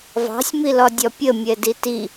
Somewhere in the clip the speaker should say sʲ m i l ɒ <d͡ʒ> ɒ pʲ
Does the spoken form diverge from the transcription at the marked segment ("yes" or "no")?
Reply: yes